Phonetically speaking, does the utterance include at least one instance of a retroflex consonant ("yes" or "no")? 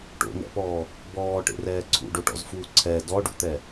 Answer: yes